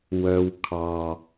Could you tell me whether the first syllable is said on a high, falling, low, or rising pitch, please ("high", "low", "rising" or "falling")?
low